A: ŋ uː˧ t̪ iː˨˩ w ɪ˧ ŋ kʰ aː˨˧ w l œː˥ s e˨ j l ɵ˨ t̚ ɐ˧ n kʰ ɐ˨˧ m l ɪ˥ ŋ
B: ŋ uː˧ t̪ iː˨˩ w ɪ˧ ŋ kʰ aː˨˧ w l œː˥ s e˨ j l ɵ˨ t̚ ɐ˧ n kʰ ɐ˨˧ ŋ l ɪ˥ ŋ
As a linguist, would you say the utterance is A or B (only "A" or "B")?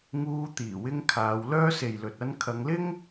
B